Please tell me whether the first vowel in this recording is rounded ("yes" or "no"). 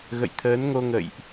no